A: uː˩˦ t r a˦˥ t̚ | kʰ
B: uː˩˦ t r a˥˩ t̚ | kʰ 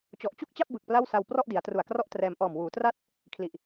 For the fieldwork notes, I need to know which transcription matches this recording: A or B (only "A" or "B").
B